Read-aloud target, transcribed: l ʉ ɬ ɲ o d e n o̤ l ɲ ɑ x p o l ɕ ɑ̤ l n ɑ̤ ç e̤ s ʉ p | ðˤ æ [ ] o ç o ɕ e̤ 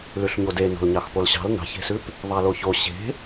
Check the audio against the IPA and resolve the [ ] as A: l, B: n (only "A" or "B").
A